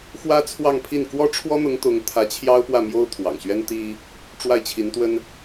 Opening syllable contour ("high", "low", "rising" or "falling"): high